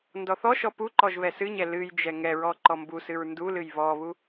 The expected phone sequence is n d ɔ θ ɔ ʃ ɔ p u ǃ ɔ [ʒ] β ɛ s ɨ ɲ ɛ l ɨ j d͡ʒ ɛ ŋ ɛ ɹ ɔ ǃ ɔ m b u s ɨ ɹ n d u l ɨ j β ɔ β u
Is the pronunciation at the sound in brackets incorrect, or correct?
correct